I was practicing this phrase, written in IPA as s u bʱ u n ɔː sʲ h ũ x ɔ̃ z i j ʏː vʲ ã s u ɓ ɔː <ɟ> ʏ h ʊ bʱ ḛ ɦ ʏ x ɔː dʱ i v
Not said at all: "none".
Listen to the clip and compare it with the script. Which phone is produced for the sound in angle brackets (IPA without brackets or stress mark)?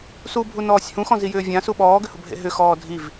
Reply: ɡ